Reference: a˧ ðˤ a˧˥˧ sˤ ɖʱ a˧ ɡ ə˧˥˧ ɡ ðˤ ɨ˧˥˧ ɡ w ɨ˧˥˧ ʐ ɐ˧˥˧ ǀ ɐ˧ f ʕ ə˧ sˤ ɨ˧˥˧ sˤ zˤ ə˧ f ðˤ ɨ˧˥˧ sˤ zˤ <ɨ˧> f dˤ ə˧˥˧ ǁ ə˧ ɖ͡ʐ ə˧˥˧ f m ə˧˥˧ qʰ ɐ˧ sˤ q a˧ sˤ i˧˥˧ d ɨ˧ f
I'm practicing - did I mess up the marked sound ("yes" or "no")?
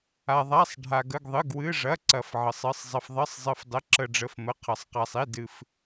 no